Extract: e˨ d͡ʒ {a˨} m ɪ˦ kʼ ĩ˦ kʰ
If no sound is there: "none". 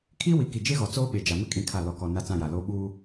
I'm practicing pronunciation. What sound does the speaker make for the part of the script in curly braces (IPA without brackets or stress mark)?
a˨